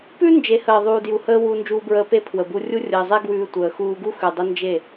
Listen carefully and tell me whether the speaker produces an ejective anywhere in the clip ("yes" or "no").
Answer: no